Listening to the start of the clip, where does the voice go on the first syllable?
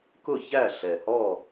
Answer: falling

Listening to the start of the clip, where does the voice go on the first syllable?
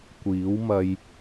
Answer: rising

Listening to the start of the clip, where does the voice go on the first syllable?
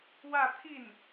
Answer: falling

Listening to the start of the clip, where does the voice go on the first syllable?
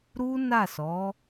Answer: high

